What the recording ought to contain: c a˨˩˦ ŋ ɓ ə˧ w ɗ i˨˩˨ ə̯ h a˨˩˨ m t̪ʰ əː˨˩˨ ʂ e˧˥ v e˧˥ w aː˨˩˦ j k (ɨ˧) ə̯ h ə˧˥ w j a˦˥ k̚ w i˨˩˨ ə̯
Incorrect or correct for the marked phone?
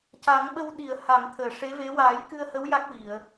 correct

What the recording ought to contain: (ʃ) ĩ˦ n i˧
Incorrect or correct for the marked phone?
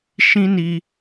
correct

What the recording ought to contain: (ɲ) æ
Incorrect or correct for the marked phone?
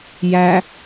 incorrect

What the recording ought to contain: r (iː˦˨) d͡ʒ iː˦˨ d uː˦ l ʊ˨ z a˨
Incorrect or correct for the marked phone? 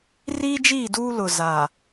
incorrect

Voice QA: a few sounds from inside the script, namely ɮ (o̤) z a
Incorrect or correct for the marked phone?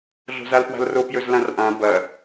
correct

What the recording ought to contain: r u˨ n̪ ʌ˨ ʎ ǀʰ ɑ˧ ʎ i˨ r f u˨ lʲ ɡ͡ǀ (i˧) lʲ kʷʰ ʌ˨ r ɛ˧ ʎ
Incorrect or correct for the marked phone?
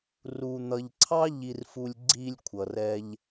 correct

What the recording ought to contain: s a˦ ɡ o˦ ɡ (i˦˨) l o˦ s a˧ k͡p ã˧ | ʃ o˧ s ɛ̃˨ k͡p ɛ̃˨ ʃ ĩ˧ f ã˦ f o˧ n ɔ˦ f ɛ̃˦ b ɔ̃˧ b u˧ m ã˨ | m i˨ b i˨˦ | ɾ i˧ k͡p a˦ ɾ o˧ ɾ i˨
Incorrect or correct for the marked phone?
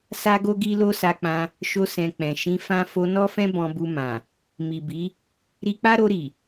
incorrect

